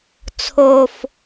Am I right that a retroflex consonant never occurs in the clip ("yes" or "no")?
yes